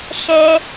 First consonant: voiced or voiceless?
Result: voiceless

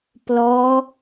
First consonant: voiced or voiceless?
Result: voiceless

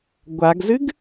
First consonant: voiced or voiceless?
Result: voiced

